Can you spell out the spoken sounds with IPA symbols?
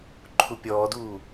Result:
ǃʰupʲɔːduː

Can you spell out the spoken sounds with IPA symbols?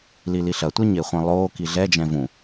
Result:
liliɬɐtʷɛ ɲeχʷɛ̃lˠoːki ɮɛd͡ʒɛ̃ vũ

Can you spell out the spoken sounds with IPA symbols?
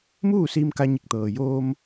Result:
muː˥˨siː˧m ka˧ɲi˧˩k̚t̪ɤː˩joː˧m

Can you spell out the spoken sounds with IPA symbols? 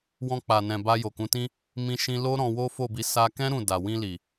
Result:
wɔ̃˧k͡pa˨nɛ̃˨ ba˧jo˨kũ˨˦tĩ˦ | mĩ˧ʃĩ˧lo˦ ɾɔ̃˧wo˦fo˦˨bi˨˦ sa˧kɛ̃˦ ɾũ˦˨ da˨wĩ˧li˨

